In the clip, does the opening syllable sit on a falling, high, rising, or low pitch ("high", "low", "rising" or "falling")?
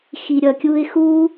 low